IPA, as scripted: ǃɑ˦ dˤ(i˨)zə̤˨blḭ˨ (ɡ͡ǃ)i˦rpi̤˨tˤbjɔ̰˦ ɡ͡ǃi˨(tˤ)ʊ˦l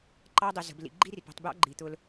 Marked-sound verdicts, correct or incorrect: correct, correct, incorrect: t̪

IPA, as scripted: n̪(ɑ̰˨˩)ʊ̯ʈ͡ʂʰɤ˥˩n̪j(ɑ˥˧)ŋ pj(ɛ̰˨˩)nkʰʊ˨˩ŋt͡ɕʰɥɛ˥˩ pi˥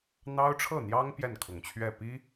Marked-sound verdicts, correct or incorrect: incorrect: ɑ˥, incorrect: ɑ˥, incorrect: ɛ˥˩

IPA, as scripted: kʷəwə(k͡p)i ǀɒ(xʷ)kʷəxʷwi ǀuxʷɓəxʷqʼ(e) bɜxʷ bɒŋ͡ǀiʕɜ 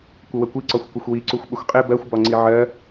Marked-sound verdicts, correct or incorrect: incorrect: kʷ, correct, correct

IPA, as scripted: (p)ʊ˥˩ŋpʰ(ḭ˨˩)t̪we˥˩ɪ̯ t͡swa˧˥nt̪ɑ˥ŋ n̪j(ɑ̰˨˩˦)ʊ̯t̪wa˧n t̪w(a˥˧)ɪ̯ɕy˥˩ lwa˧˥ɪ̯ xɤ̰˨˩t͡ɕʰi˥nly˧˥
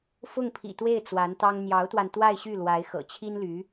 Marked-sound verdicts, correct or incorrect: incorrect: f, correct, incorrect: ɑ˧˥, correct

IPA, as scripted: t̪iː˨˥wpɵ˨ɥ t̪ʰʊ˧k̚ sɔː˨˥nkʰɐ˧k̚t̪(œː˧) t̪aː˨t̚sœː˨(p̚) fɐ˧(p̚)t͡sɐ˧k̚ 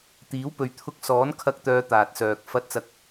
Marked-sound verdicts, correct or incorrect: incorrect: œː˨˧, incorrect: k̚, incorrect: t̚

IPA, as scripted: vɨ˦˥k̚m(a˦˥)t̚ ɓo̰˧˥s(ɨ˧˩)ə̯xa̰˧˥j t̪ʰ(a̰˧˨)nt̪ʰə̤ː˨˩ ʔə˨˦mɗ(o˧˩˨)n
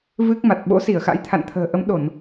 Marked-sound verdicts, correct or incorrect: incorrect: a˨˩, incorrect: i˧˩, correct, correct

